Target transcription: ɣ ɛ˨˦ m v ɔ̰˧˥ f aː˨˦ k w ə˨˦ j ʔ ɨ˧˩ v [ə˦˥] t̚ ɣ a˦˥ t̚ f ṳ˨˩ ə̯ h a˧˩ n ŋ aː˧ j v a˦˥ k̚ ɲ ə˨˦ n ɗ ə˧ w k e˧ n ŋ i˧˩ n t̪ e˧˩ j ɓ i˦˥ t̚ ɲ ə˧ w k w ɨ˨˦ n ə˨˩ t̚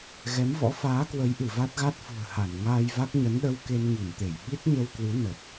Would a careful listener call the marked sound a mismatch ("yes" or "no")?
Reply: yes